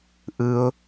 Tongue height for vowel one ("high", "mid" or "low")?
high